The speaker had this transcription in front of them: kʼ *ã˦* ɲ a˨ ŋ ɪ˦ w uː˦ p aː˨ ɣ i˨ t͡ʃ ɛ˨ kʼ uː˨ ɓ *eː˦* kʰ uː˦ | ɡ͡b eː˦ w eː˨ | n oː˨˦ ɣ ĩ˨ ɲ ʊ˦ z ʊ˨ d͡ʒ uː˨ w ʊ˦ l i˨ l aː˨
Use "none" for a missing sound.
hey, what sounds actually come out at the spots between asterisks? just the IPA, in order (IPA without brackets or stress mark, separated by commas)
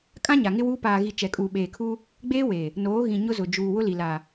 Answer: ã˦, eː˨